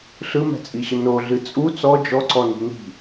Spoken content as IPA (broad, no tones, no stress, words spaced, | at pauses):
ɬɯmɛ̤t͡sʼiɕə noɮɨ t͡sʼu t͡sɔ d͡ʒɔǀɔni̤ ni̤